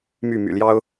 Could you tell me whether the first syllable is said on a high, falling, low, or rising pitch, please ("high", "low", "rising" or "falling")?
falling